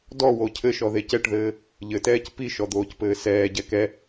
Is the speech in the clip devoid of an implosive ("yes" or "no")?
yes